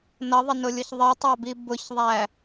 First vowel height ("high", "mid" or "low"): mid